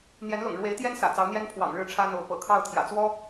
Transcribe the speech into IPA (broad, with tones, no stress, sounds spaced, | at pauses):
n̪ j ɛ˧˥ n l ʊ̰˨˩ ŋ ɻ w e˧˥ ɪ̯ t̪ j ɛ˥ n s ä̰˨˩ t͡s ɑ˧˥ ʊ̯ n̪ j ɛ˥ n pʰ w ɑ̰˨˩ ŋ ɻ ɻ̩˥˩ ʈ͡ʂʰ ä˥ n̪ o˧˥ ʊ̯ p ɤ̰˨˩ kʰ ɑ˥˩ ʊ̯ t̪ʰ j ä̰˨˩ t͡s w ɔ˥